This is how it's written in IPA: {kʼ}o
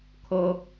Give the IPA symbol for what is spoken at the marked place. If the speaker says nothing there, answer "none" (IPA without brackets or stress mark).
kʰ